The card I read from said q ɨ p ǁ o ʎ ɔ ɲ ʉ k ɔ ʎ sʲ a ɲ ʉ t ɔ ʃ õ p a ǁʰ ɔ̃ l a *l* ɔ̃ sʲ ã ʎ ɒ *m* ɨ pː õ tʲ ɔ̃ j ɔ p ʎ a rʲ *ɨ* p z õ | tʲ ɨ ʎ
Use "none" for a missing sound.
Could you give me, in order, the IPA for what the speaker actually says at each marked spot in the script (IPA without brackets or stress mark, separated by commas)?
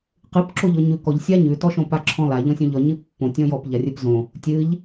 ʎ, ɲ, ɨ